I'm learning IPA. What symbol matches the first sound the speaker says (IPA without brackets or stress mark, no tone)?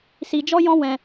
s